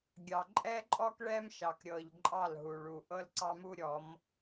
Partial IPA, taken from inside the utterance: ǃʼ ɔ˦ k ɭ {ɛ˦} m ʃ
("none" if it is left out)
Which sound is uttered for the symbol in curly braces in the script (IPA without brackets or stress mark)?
ɛ˦